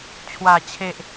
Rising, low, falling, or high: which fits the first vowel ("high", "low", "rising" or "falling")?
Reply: low